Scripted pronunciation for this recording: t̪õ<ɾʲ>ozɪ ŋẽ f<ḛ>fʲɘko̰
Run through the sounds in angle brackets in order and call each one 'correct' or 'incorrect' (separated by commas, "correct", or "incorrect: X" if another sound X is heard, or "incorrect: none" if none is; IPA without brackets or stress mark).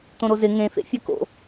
incorrect: ɾ, correct